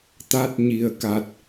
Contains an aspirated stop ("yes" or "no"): no